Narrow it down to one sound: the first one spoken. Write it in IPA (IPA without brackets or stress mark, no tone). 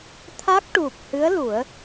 t̪ʰ